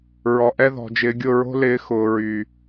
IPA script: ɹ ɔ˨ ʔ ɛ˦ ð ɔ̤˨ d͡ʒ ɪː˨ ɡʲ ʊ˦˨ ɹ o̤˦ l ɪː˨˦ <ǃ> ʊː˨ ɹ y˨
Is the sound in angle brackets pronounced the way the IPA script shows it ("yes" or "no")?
no